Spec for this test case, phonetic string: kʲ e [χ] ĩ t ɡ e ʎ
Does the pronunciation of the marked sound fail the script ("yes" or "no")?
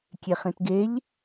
no